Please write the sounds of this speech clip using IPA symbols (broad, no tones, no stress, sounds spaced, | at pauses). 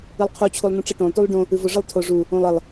ɨ lˠ qʰ u t͡ɕʰ u lˠ n ũ ʈ͡ʂ ɨ ʈ õ lˠ t u lˠ ɖ õ | ɨ v o ʐ ɨ lˠ tʰ o ʐ u | õ lˠ ə lˠ